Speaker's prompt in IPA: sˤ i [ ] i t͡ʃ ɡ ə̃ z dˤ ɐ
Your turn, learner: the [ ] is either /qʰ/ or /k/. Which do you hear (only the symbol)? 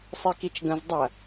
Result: k